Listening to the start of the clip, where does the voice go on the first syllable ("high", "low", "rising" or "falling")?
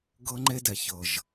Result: high